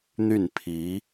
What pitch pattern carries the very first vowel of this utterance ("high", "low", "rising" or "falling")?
falling